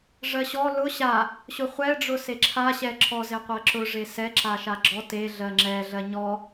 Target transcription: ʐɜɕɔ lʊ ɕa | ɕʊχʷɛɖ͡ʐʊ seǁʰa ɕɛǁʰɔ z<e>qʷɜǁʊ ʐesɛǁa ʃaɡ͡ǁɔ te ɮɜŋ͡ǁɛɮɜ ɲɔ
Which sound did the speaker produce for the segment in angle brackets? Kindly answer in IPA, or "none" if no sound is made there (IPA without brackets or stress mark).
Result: e